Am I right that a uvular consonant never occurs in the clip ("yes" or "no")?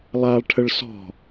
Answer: yes